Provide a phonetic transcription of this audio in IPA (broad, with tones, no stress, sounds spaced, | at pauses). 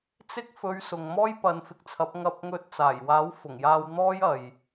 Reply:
t͡s ɪ˥ k̚ f ɵ˨˧ ɥ s ʊ˨ ŋ m ɔː˥ j p ɐ˨˧ n f ɪ˨ k̚ t͡sʰ ɐ˨˥ p̚ ŋ ɐ˧ p̚ ŋ ɵ˧ t̚ t͡s aː˨˩ j w aː˨˥ w f ʊ˨˩ ŋ j aː˧ w n̪ ɔː˥ j ɐ˨ j